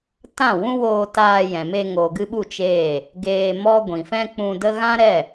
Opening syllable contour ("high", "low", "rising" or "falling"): falling